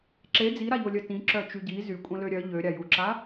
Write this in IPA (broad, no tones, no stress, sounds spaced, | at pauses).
ǁ e d͡z i ɾ a ʎ o lʲ œ t ĩ ǁ œ t͡ʃ y ɟ i z y kʷʼ ə̃ l ø ɾʲ œ ʎ ø ɾʲ a j u ǁ a